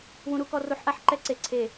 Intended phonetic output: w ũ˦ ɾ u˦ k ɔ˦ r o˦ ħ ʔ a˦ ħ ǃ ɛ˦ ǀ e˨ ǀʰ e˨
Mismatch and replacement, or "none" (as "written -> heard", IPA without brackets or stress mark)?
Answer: none